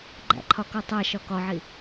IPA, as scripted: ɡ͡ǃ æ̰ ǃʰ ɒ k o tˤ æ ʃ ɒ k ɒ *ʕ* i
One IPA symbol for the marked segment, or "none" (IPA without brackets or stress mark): ʕ